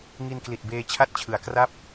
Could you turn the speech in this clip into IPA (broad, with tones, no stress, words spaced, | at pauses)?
ŋi˧nkli˨˩t̚beː˧ t͡ɕʰa˥˩t̚t͡ɕʰɯ˩˦a̯ kra˥˩p̚